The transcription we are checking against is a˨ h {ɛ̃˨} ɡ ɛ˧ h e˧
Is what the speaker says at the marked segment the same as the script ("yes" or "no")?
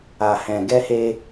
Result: yes